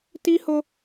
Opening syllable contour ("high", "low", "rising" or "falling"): high